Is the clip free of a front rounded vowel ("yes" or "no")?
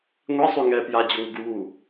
no